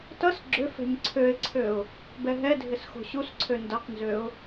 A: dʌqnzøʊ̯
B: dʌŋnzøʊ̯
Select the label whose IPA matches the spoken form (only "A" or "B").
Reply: A